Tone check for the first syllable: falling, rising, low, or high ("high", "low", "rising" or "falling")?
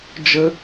high